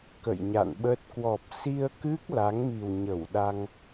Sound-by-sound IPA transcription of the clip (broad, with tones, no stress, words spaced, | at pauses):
kə̰˧˨jɲa̰˧˨nɓə˦˥t̚ kwɔ˨˩p̚si˧ə̯kɨ˦˥k̚ la˨˦ŋmi˨˩w ɲə˧˩wɗa˧ŋ